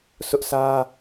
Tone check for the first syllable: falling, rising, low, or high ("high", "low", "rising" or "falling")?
high